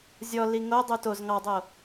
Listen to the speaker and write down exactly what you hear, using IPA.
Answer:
zʲ ɔ l i ŋ o dˤ u t o z ŋ ɑ dˤ o

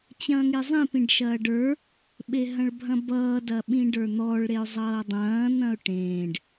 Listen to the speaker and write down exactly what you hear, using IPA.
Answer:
t͡ɕ ɐ̃ː ŋ e zˤ ĩ p ĩ ɖ ʃ ɐː ɖ ə˞ | ɓ e ɦ ɐ̃ ɭ bʱ ɐ̃ b ʌː d ɐ ɓ ĩ ɖ ə˞ n̪ ɔ ɭ ɾ e ʊ̯ zˤ ʌː dˤ ɐ̃ː n̪ ɐ̃ ʊ̯ ʈ ẽː ɖ

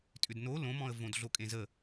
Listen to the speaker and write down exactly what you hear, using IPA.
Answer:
tʼ ʏ d n o l õ m ɔ̃ ə̯ v õ d ɮ o kʼ ẽ z ə

